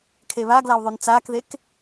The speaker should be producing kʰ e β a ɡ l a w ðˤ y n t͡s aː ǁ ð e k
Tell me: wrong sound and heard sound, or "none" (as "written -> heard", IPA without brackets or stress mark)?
ǁ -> k